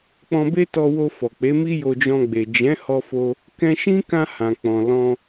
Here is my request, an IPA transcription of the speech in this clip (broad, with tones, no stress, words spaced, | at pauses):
k͡pɔ̃˧be˦tɔ˧wo˧ fɔ˨k͡pe˨˦mi˦ jo˧d͡ʒɔ̃˧ɡ͡be˨ d͡ʒɛ̃˨˦hɔ˧fo˧ | kɛ̃˧ʃĩ˦kã˧ hã˨k͡pɔ̃˨ lɔ̃˧